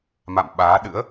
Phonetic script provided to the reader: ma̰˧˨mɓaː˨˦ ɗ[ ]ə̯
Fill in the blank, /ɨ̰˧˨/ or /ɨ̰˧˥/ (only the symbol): ɨ̰˧˥